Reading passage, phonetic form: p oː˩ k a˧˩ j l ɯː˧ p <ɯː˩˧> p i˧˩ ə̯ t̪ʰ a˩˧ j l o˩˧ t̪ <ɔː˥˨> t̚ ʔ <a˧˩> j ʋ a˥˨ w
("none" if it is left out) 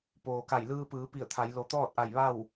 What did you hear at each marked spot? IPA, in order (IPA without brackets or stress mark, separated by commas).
ɯː˩˧, ɔː˥˨, a˧˩